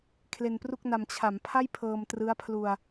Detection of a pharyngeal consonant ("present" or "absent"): absent